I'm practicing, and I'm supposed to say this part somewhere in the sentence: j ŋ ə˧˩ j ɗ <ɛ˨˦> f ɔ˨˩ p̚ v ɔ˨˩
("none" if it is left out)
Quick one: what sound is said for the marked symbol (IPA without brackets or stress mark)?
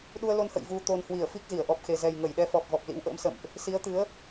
ɛ˨˦